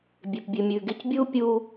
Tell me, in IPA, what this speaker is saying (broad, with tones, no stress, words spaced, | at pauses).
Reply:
bʲe˩pbʲʉ˩mʲʉː˩ɡe˧c bʲuː˥ pʲuː˧